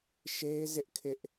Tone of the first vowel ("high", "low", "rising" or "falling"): high